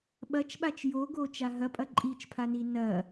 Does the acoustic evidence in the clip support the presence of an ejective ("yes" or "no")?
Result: yes